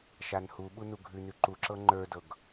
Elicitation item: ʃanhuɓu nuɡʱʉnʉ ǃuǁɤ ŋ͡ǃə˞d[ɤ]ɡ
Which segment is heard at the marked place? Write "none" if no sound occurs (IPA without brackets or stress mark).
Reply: ɤ